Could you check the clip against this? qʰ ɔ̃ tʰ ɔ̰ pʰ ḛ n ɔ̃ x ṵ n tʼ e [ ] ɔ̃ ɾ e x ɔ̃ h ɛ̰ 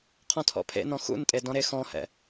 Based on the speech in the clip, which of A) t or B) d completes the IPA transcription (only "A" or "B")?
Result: B